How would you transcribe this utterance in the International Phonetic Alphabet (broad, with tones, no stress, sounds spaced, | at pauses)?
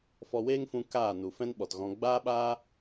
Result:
f ɔ˧ w eː˦ ŋ f ũ˧ k aː˦˨ n u˨ f ɛ̃˦ n ɓ ɔ˨ t ɣ ɔ̃˧ ɡ͡b aː˦ ɓ aː˦